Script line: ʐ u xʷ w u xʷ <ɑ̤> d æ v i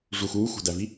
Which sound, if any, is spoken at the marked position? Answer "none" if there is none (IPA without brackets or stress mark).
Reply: ɑ̤